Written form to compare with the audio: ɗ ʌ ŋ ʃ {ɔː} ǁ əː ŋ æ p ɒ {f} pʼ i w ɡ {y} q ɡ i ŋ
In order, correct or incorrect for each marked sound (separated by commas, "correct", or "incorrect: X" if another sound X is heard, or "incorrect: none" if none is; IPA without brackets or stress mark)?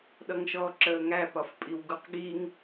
correct, correct, incorrect: u